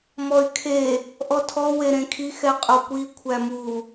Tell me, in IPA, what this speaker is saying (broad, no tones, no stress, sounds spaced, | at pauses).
m ɔ y̯ kʰ e | ʔ ɔ tʰ ɔ w e ɾ ẽ kʰ i x ɛ qʼ o kʷ i kʷʰ æ m u